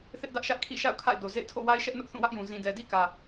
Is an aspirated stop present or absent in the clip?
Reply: present